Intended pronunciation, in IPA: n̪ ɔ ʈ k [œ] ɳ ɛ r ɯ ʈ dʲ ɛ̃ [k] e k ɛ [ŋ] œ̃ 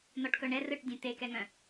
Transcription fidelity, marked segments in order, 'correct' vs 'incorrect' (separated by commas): correct, incorrect, correct